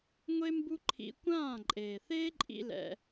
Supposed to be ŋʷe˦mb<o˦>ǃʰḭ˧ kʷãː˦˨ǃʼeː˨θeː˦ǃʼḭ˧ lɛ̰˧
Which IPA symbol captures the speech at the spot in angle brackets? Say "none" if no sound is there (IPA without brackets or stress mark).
u˦